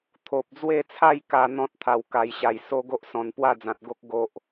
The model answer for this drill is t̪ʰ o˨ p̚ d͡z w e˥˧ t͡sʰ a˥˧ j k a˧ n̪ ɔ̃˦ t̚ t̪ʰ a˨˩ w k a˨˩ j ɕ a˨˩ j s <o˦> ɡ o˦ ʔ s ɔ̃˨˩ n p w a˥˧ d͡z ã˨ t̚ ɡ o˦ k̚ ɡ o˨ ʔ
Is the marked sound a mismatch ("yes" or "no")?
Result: no